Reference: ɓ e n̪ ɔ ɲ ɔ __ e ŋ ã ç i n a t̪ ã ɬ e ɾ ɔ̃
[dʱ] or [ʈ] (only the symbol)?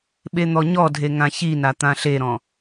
dʱ